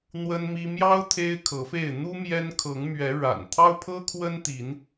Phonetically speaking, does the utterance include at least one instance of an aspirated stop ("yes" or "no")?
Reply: yes